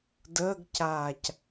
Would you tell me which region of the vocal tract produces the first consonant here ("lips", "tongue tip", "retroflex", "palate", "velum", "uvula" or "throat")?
tongue tip